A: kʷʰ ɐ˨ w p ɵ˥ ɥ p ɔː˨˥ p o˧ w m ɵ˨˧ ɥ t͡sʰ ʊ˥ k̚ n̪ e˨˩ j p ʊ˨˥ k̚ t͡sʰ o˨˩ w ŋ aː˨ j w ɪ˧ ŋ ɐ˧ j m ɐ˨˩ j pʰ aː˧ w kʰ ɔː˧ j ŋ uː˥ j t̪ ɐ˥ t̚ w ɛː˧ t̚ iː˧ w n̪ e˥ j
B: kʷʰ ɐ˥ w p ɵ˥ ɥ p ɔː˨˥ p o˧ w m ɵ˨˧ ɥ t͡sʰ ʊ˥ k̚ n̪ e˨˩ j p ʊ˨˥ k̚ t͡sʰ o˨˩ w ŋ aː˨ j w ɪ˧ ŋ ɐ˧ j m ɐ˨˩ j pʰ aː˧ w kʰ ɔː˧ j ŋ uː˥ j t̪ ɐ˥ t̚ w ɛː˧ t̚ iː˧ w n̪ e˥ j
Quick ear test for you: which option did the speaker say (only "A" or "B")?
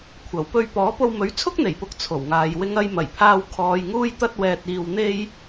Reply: A